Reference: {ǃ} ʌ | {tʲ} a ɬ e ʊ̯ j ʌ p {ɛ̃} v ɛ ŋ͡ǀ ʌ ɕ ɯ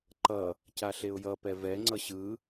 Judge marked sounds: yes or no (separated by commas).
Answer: yes, no, no